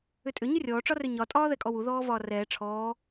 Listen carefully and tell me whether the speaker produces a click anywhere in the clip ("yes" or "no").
no